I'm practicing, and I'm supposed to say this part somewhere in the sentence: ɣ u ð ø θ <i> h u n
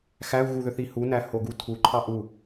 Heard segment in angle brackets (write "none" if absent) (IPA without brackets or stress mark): i